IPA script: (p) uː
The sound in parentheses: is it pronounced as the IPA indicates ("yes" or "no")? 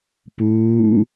yes